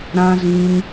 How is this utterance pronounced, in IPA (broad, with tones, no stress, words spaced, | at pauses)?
ɾã˦zĩ˦n